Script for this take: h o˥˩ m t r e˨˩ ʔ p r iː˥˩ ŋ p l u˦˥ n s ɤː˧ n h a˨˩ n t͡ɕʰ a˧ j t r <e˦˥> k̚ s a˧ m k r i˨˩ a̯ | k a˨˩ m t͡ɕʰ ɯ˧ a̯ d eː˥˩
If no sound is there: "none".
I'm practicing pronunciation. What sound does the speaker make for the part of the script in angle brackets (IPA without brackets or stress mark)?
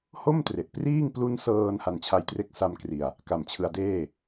e˦˥